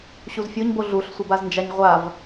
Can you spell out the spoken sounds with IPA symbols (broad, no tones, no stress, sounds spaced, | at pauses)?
ɕ u z fʲ o ɲ b o ɮ u ɬ sʷ e b a z n d͡ʒ a ɲ ʁʷ a v